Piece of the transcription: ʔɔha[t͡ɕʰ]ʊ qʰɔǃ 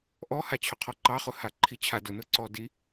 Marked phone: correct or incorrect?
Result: correct